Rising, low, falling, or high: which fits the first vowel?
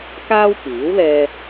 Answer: high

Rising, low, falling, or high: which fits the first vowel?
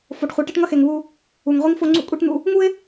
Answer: low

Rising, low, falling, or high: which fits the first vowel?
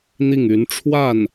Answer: falling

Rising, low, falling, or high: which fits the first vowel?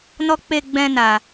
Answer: high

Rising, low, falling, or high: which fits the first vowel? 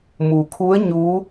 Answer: low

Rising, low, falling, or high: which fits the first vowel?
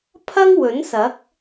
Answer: high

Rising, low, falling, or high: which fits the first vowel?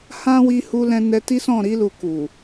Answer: high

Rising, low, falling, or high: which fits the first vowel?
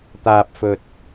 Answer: low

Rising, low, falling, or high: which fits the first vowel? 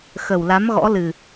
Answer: low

